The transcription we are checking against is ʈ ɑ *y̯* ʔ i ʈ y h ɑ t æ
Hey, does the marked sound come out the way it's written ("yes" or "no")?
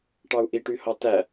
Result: no